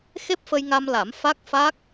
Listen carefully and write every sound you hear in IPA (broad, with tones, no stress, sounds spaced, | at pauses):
x e˦˥ p̚ f ə˧ j ŋ a˧ m l a˨˩˦ m f a˦˥ k̚ f a˦˥ k̚